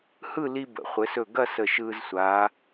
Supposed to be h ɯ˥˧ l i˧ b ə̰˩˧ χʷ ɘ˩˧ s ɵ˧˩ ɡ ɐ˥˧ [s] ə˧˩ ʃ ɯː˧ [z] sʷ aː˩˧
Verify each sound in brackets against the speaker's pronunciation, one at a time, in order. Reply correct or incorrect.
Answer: correct, correct

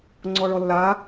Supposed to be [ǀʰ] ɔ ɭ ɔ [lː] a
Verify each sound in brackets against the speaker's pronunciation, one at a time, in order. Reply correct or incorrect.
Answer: incorrect: ŋ͡ǀ, correct

